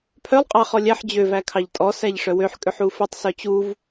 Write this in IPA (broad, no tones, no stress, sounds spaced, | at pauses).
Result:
pʰ œ lˠ qʼ ɑ χ ɔ lʲ æ ħ d͡ʑ ø v æ kʰ ɑ ʎ tʼ ɔ s æ ʎ ʂ œ w ø ħ kʼ ø ħ u f ø tˤ s œ t͡ɕ u v